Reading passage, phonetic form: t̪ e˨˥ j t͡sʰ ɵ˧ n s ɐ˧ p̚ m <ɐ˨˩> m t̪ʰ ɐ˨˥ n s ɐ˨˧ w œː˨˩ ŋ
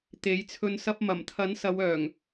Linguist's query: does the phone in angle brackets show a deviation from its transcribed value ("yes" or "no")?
no